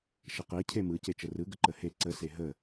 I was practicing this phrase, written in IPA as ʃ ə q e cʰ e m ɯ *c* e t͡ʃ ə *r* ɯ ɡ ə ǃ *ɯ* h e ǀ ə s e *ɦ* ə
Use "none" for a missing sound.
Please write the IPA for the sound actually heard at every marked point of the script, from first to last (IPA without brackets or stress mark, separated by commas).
c, r, ə, ɦ